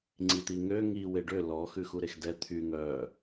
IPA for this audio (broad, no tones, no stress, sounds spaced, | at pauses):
ŋ͡ǀ i t̪ i ŋ ø ŋ i w e ɖ ø l ɔ x ʉ x u ɾ e x d ɛ t̪ʰ y ŋ œ